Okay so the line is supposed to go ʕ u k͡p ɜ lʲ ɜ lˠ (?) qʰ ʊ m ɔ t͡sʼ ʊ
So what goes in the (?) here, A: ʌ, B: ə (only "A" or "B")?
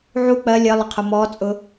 B